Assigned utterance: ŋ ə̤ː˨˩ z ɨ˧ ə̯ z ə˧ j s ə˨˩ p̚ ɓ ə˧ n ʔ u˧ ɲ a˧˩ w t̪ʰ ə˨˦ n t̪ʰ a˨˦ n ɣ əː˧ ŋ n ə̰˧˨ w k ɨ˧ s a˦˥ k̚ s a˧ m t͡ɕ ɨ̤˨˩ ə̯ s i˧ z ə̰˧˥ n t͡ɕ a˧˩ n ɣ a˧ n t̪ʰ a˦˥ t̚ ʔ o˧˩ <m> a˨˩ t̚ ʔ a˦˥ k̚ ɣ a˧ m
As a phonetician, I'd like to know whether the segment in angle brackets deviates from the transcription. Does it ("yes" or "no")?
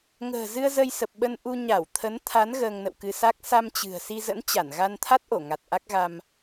yes